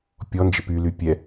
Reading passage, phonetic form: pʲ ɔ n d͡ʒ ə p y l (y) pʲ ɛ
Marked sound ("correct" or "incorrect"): correct